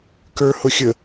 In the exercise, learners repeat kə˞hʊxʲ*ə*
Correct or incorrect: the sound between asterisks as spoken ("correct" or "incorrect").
correct